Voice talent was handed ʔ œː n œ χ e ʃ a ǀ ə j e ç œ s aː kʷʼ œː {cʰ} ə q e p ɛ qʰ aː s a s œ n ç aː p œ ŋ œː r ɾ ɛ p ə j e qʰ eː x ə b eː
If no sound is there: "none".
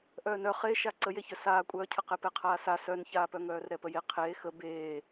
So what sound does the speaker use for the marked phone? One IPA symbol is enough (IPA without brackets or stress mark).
cʰ